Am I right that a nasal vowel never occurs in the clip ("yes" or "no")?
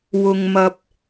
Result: yes